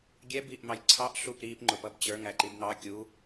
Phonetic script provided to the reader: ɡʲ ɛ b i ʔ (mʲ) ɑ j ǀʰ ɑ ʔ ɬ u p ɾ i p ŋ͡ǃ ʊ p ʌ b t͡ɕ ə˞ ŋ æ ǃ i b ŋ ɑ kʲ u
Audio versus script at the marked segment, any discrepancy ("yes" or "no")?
yes